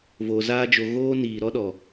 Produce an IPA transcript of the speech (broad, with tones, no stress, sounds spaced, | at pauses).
v o˨ z aː˧ d͡ʒ o˨ ɣ oː˦ n iː˨ ɾ ɔ˦ ɗ ɔ˨